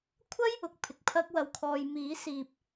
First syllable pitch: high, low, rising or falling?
high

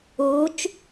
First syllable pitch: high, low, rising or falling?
rising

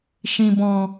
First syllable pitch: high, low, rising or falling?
low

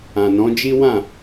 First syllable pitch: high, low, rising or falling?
low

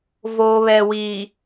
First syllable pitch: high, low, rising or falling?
low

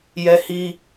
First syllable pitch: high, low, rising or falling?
high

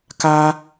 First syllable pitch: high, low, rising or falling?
high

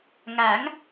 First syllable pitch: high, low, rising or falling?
rising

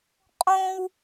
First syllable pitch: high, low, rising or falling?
high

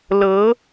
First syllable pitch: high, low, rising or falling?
rising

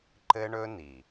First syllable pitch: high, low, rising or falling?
high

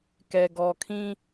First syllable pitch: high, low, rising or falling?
low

